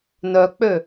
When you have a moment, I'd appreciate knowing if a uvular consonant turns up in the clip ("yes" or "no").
no